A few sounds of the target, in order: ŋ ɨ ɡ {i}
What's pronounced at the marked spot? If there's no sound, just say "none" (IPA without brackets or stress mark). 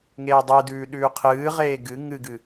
ɨ